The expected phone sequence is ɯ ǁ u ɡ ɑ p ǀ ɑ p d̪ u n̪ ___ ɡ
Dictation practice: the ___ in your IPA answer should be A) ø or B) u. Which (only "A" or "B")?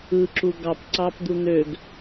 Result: A